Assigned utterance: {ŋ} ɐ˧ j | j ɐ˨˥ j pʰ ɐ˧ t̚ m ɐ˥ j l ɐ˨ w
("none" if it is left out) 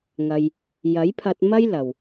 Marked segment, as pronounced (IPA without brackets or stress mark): ŋ